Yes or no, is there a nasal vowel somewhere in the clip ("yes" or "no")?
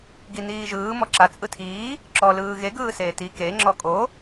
no